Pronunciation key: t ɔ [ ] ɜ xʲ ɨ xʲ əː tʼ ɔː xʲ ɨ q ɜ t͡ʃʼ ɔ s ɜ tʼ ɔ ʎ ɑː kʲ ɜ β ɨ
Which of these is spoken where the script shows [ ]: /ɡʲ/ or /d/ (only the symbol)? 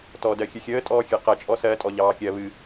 d